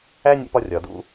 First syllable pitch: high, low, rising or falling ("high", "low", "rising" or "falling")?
high